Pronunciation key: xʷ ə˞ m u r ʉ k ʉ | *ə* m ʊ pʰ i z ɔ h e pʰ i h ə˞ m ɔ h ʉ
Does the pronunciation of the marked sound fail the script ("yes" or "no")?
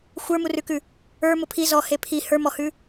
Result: yes